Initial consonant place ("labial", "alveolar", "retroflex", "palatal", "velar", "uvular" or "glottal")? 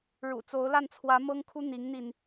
retroflex